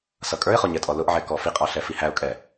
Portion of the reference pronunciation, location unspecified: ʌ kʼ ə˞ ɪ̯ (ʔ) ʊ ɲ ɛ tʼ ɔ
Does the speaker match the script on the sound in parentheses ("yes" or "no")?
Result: no